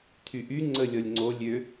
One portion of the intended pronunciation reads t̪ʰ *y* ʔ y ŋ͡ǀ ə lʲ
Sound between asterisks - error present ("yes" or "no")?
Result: no